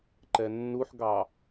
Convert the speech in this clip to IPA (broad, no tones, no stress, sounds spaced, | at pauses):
ǃ ɛ nː u ħ ɡ ɑ